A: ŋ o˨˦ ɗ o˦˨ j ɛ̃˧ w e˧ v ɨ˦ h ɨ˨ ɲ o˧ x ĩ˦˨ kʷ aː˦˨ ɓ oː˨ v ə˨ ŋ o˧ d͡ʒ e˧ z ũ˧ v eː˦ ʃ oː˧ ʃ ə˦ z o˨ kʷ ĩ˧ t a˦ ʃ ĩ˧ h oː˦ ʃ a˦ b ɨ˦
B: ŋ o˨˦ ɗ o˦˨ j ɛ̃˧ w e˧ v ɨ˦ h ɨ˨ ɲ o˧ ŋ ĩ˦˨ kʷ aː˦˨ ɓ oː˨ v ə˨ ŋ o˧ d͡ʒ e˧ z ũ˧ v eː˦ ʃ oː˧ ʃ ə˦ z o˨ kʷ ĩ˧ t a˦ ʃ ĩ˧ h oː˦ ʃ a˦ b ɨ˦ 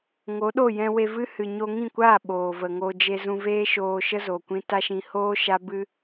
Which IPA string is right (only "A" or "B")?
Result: B